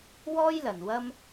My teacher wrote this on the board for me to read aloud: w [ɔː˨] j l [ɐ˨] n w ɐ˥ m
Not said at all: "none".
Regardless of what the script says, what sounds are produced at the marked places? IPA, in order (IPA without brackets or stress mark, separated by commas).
ɔː˥, ɐ˨